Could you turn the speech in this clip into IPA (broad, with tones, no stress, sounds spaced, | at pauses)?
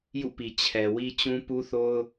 j ṵ˦˨ p i˨ t͡ɕʰ ɛ˨ w i˦ t͡ɕ ũ˦ p u˦ θ o˦ ʊ̯